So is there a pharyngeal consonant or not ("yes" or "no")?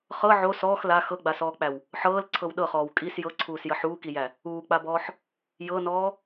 yes